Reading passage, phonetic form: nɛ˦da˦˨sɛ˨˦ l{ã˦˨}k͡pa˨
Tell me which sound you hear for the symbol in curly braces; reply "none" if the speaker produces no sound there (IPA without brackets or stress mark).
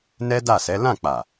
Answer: ã˦˨